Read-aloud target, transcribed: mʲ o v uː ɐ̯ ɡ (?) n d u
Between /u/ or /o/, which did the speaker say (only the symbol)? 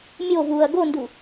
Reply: o